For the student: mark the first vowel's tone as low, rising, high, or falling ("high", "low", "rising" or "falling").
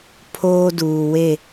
high